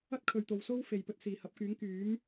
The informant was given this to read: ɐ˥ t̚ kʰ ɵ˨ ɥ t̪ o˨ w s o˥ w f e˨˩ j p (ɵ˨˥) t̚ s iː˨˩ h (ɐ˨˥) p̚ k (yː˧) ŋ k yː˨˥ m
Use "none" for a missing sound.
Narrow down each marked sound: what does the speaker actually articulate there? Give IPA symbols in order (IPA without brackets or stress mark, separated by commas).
ɵ˨˥, ɐ˨˥, yː˨˥